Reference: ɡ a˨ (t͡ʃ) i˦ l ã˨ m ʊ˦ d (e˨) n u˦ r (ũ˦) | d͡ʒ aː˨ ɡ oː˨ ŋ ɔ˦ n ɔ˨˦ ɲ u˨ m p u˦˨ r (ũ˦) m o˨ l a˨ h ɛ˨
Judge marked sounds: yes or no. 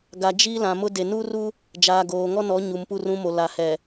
no, yes, no, yes

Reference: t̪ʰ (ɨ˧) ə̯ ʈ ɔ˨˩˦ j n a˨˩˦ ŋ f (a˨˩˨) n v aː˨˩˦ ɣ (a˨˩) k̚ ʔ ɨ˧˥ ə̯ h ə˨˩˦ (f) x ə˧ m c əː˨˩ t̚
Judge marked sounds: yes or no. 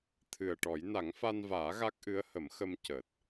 no, no, no, no

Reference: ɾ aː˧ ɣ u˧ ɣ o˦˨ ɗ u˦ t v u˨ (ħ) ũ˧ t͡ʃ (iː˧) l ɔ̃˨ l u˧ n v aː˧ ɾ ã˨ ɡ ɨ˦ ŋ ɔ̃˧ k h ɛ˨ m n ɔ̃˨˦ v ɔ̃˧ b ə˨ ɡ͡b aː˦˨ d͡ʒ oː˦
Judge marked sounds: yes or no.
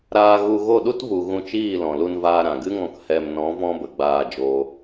no, no

